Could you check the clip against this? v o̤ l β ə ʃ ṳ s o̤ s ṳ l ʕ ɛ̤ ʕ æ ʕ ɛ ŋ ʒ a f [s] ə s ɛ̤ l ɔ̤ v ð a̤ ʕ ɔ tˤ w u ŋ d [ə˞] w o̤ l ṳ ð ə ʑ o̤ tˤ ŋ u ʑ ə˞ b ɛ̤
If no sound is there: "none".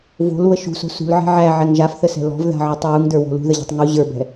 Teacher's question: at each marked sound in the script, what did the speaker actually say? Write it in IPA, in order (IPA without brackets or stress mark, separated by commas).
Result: θ, ə˞